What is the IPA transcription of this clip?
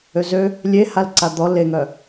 ø z ø | lʲ e h a l ǀ a d̪ ɔ l e ŋ œ

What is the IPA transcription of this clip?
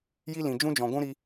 j i˦ l ĩ˨ d͡ʒ ũ˦ d͡ʒ ɔ̃˨ ɡʷ ũ˦ ɾ i˧

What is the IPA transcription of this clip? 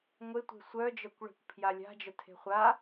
ŋʷ e tʷ e̤ sʷ œ d͡ʒ œ kʷ ɭ e̤ kʷ pʰ j a lʲ a̤ d͡ʒ œ tʰ e̤ χʷ a

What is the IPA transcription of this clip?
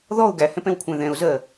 ð ɔ ʊ̯ ɡ æ h ɛ̃ p ɛ̃ w kʷʰ æ̃ ð ɛ̃ ʊ̯ z ɜ

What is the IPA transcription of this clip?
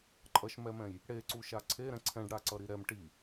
ǃʼ ʌ ʃ m ɛ m ɛ̃ j | ɽ e ǀ u ʃ a ǀʰ e ɾ ɛ̃ ǀʰ ɛ̃ ɖ ɽ a ǀ ʌ ɾ i ɾ ɛ m ʈ i

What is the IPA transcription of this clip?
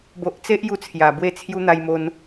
b o˨ ʔ t͡s e˦ ʔ j u˧ t͡sʰ j a˨˩ b w e˥˧ t͡sʰ j u˦ n̪ a˧ j m o˧ n

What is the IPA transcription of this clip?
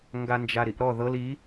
ŋ ɡ a n d͡ʒ a ɾ i ʔ ɾ ɔ ð ɤ l i

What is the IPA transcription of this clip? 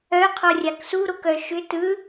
œ qʰ ɔ rʲ a k s u ɾ o k œ ʃ ʏ t ɯ

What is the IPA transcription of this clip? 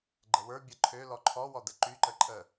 ɡ͡ǃ ə w ə˞ bʲ ə ǃʰ ø l ɔ ǃʰ ɔ w ɔ d ə ǃ y ǃ ə ǃʼ ə

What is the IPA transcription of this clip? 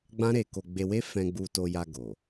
ɡ͡b ã˦ ɾ e˧ k o˧ ɡ͡b e˧ w e˦ f ɛ̃˧ ɡ͡b u˧ t o˧ j a˧ ɡ o˨

